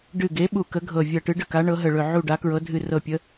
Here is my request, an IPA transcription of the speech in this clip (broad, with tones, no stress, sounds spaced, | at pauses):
ɖ ɨ˧˩ ɡ e˨˥ ɓ u˧˩ k ə˨˥ ɡʱ ɤ˧˩ vʲ ɤ˧˩ ʈ ɨ˨˥ ɖ ə˥˨ k a˨˥ ɳ ɤ˨˥ ɦ ə˧˩ ɭ ɵ˧˩ ʕ u˥˨ ɖ a˨˥ k ɹ ɤ˨˥ dʱ ɨ˧˩ r ɤ˧˩ pʲ ə˨˥